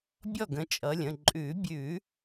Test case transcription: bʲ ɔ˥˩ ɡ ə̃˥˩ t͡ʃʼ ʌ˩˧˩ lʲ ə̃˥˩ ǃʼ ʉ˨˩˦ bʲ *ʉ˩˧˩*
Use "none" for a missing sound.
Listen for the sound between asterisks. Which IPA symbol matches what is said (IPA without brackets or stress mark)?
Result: ʉ˨˩˦